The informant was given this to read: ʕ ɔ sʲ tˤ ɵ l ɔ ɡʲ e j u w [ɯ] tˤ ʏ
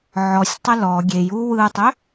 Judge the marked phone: correct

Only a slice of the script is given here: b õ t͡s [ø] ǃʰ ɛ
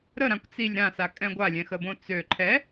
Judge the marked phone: correct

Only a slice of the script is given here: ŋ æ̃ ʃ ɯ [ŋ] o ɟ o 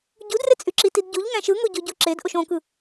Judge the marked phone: correct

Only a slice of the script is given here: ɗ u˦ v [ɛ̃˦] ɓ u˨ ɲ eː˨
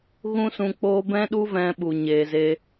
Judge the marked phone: incorrect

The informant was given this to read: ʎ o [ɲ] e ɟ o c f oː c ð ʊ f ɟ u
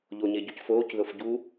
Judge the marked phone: correct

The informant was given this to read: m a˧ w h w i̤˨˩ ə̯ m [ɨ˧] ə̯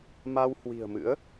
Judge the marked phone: incorrect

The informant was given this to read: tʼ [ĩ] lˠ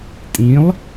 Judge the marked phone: correct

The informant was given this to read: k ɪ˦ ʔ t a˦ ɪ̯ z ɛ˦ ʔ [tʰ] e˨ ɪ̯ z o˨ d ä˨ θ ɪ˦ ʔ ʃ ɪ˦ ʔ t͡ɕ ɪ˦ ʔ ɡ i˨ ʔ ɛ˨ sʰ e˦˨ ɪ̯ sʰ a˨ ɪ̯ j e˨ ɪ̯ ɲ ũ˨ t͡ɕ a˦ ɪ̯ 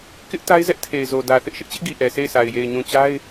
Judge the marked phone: correct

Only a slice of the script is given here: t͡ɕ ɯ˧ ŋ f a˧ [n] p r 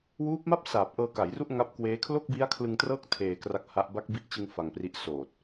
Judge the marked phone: incorrect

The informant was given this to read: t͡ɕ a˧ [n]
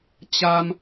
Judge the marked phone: incorrect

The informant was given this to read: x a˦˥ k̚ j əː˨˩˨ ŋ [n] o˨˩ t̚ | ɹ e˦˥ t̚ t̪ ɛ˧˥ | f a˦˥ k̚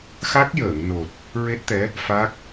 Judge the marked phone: correct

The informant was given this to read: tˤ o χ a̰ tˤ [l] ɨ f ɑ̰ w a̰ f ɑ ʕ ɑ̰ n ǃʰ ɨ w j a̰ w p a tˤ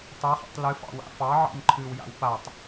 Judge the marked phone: correct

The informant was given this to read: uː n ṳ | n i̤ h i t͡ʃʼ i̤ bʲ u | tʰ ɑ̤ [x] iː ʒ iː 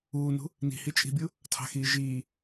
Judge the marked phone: correct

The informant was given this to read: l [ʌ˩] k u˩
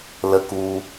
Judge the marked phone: incorrect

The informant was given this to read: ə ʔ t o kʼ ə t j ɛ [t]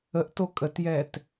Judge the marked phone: correct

